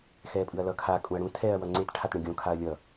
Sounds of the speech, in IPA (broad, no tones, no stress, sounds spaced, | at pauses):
x ɛː pʼ ɯ ɐ̯ l ʌ kʰ a kʼ ũ ɐ̯ ɽ ũ tʰ ɛː ɐ̯ w ʌ ŋ͡ǀ e t ʈʰ a t ɳ ẽ ɡʲ õ kʰ a ɐ̯ lʲ ʌ